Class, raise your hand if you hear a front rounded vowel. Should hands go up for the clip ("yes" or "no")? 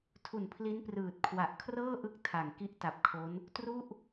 no